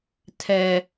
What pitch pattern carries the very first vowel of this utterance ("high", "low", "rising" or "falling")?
low